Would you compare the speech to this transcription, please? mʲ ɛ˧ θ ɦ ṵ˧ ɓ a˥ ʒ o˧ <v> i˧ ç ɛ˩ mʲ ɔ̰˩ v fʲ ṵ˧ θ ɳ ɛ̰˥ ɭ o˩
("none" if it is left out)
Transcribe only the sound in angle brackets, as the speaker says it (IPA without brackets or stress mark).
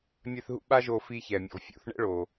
f